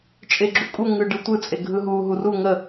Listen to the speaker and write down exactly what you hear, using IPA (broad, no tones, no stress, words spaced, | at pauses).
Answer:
t͡ʃʼeɡ͡ǁukʼu ŋɯɖɯtʷɯ t͡sʼeɡʱɯɦu ɦuru ŋə